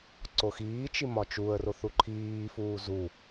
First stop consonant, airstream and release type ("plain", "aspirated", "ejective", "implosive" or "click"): click